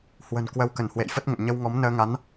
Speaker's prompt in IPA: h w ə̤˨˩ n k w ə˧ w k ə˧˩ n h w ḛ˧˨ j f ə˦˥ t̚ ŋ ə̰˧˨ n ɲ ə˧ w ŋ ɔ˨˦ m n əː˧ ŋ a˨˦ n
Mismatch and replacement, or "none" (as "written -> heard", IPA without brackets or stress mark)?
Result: none